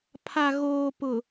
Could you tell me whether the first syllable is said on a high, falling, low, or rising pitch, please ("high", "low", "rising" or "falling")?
low